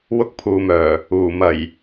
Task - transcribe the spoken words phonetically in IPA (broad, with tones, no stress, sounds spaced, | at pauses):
w ʊ˧ k̚ pʰ uː˨ m œː˨˩ | uː˨˩ m ɐ˨˩ j